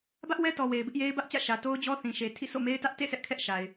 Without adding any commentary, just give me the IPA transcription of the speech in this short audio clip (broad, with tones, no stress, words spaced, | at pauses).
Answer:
bä˦ʔwɛ˦tɔ˨ we˨ɪ̯bɪ˦ʔje˦ɪ̯ bä˦ʔt͡ɕä̰˦˨ ʃä˨to˦ʊ̯d͡ʑɔ˦θĩ˨ ʃe˨tʰḭ˦˨ so̰˦˨me˦ɪ̯tä˦ʔ tḛ˦˨ sɛ˦ʔkʰɛ˦ʔʃa˨ɪ̯